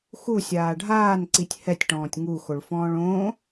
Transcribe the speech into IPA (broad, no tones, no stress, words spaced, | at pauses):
xusʲaː ɖʱaːnǀitʲ hɛtʲʈɔ̃ːtʲ ŋuxoɭfɔ̃ːɭ õ